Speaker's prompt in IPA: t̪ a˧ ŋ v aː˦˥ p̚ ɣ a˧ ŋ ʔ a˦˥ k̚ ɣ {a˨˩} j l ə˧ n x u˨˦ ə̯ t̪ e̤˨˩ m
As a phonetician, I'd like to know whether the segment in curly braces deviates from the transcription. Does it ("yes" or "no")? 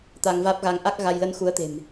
yes